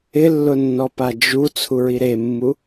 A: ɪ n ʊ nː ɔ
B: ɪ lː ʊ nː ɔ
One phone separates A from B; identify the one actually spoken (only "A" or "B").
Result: B